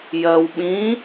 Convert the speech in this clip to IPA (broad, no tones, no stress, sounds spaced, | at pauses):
j ɜ w ɓ ĩ